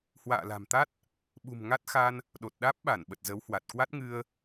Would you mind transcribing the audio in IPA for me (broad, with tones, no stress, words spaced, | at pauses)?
hwa̰ː˧˨la̤˨˩mt̪a˦˥t̚ | ɓṳ˨˩mŋa˦˥t̚ xa˧n | ɗo˨˩t̚ ɗaː˦˥p̚ɓa˧˩nɓə˨˩t̚ zə˨˦whwa˨˩t̚ kwa˦˥t̚ŋɨ˧ə̯